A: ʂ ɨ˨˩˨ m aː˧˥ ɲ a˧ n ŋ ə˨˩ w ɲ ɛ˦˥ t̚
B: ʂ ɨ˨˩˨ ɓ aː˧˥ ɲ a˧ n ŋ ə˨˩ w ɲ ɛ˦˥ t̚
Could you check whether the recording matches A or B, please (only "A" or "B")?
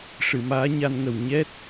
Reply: A